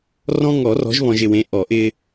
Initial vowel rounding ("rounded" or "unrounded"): rounded